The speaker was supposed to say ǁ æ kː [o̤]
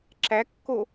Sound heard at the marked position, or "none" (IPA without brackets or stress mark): o